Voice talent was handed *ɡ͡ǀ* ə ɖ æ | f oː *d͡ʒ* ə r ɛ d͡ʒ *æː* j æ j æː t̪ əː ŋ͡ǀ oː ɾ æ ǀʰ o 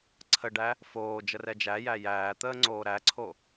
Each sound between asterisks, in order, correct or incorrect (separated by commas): incorrect, correct, incorrect